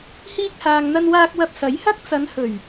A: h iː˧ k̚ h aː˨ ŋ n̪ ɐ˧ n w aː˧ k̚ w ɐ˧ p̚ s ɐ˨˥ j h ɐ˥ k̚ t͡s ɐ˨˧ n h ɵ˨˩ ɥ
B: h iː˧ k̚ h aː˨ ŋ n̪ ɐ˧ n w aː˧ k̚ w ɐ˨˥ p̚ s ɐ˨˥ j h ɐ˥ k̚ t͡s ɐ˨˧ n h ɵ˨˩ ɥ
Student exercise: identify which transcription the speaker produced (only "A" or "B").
A